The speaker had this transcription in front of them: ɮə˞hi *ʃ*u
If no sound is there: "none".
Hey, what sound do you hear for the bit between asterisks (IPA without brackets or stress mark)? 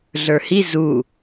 z